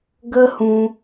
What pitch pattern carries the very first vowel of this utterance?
high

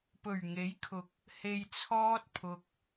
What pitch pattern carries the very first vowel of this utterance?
low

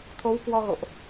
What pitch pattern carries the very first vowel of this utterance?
rising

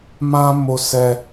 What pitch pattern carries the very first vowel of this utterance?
high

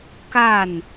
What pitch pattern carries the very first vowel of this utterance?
falling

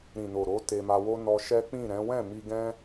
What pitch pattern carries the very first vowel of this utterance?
low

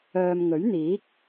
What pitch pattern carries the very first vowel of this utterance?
low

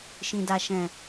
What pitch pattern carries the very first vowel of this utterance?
low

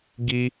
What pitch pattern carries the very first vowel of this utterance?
high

